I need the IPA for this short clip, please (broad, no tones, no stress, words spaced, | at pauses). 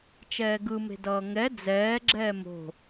t͡ʃɛːɡɯme̤ dʌːŋɛ d͡zɛːɡ͡ǁɛː mo̤